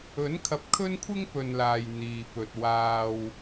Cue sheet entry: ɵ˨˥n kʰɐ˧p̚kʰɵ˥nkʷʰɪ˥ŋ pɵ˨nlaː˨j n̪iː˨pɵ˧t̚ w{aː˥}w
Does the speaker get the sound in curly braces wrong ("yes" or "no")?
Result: no